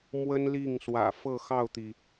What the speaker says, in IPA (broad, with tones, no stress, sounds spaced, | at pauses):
m w ə˥ n l i˥˩ ŋ s w ä̰˨˩ f ɤ˥˧ x ɑ˥˩ ʊ̯ t̪ i˩